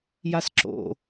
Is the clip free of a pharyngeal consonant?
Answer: yes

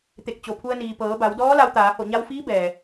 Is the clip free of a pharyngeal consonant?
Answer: yes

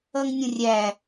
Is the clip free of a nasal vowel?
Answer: no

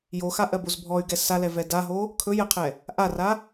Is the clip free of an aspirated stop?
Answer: no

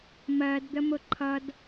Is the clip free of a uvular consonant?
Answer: yes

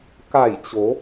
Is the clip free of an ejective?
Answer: yes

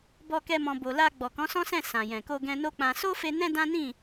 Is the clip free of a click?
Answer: yes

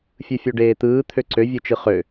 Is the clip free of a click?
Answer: no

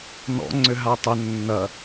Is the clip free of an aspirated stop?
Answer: yes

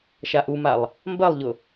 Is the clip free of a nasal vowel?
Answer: yes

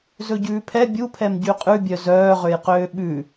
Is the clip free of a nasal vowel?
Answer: yes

